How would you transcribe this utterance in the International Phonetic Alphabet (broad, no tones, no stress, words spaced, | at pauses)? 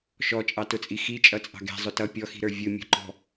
ʃɔt͡ʃʼɑtʊt͡sʼi xit͡ʃʼʌt͡sʼɑ̤ ɡɛ̤zˤʊ tʌ pʲɔxi̤ɾə˞ vʲʊmʲɔ̤ǃɔ̤